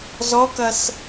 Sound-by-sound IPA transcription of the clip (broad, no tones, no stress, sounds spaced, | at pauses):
z ɔ k ɐ s